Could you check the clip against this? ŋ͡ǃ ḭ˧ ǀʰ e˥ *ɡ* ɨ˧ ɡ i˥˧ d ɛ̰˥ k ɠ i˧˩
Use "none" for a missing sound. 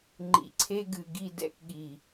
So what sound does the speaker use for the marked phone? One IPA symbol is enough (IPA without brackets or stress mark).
ɡ